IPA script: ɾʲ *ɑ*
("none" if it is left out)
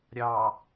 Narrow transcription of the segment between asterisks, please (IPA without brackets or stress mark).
ɑ